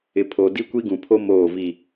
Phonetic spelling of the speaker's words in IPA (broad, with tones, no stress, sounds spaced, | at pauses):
ɪ˨ pʰ o˨ d i˦ kʷ i˦ ɡ ũ˨ pʰ o˦ m oː˦˨ v i˦˨